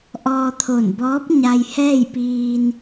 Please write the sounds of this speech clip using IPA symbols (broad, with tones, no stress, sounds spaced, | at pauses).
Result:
ʔ ɔː˧ t̪ʰ o˧˩ n b ɔː˧˥ p̚ ɲ a˧ j h ɛː˥˨ j p iː˧ n